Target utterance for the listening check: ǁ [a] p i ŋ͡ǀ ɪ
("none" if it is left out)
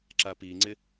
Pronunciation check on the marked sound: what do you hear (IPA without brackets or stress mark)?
a